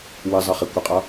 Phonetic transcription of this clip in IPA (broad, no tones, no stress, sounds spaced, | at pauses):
w ɨ zˤ ɨ χ e kʷ ɨ qʼ ɒ